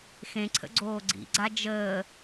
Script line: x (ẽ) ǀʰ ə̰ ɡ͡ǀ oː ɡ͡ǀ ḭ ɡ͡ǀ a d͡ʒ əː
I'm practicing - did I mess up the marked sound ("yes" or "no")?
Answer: no